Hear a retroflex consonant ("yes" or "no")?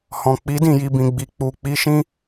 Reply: no